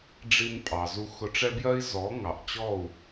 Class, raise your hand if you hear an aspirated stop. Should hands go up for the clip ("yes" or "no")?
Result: no